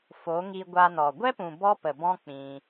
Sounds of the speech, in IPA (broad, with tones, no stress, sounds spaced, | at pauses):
f o˨˦ ŋ i˧ ɡʷ a˧ n ɔ˨ ɡʷ ɛ˦ p ũ˨ b ɔ˦ p ə˨ b ɔ̃˦ k͡p ĩ˧